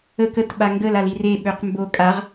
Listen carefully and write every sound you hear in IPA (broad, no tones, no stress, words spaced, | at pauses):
ə kət ɓaŋɡəl alire ɓøqmbo kʼaʁ